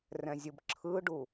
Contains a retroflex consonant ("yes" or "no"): yes